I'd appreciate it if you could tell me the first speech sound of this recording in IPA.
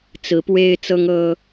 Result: t͡s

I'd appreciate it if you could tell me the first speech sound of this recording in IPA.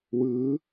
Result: w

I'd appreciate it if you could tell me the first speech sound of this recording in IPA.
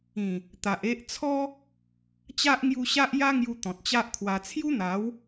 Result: ĩ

